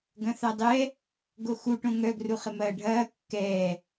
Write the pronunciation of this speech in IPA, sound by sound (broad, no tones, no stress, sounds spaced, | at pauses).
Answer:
ɡ ɐ̃ θ a dˤ ɛ | ɡ o x u ʈ õ ŋ œ ɡ r u χ ɪ m ɐː ɖʱ ɐː kː ɛː